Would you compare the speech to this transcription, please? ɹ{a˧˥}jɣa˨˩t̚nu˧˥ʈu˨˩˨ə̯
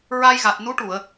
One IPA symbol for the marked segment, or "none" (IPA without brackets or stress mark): a˧